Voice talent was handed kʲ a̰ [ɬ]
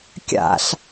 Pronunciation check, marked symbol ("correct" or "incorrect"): correct